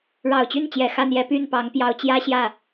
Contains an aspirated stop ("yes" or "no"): no